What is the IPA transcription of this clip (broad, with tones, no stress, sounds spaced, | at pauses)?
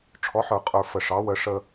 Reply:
ʈ͡ʂʰ ɔ˩˧ ħ ə˞˩ qʼ ə˞˩ f ə˩ ʂ ɑ˩˧ w ə˩˧ ʂ ə˧